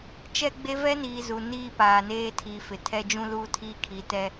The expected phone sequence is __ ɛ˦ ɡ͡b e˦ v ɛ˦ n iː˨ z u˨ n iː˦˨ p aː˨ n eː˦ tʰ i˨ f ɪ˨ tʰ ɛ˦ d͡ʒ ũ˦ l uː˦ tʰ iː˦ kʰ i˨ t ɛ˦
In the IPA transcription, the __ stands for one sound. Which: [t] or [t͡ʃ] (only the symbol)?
t͡ʃ